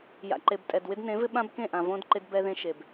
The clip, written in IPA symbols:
j a̰˨ ǃ e˨ b tʼ ɛ˨ d w ɪ˦ d n ẽ˨˦ v ɪ˦ ɓ ã˦ b k ẽ˦˨ ʔ ã˨ v õ˦ d ǃ ɪ˦ d b ɛ˦ ð ẽ˦ ʃ e˨ b

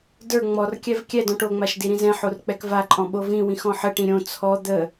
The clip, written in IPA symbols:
d ə˞ ŋ͡m ɔ r kʲ ɛ v kʲ ɛ d ɔ̃ ʈ o ŋ͡m a ʃ d i ɾ ĩ z ɛ̃ ħ o r k͡p ɛ k v a ǃʼ ɔ̃ ɓ o v ĩ w ĩ x ɔ̃ ħ ə ʈ ĩ ɾʲ õ t͡sʰ ɔ d̪ ə

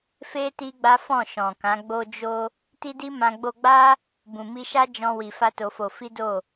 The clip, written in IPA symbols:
f e˦ t i˦ ɡ͡b a˦ f ɔ̃˦˨ ʃ ɔ̃˨ k ã˨˦ ɡ͡b o˦ d͡ʒ o˦ | t i˦ d i˦ m ã˧ ɡ͡b o˧ ɡ͡b a˦ | b ũ˨ m i˧ ʃ a˦ d͡ʒ ɔ̃˧ w i˧ f a˦ t o˧ f o˧ f i˦ d o˦˨

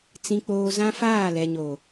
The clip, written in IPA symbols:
t͡s ĩ˦ k͡p oː˦ z ã˦ f aː˦˨ l ɛ˨ ɲ oː˨

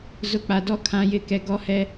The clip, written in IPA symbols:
z ʊ˨ k͡p a˨ d ɔ˦ kʰ ã˨ j ɪ˨˦ k ɛ˨ ɡ ɔ˦ h ɛ˦

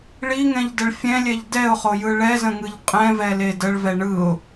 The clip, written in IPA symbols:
ɭ i ŋ ɛ̃ ʎ d ə ɭ fʲ ɛ̃ lʲ ɛ ʎ d ɛ ʊ̯ χ o j ɯ ɭ ɛ z ə̃ ŋ ɯ ʎ qʼ ɛ̃ v ɛ l e d ə ɭ v ɛ ɳ ɯ ʊ̯

